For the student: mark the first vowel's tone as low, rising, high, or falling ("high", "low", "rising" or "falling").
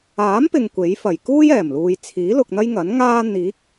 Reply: rising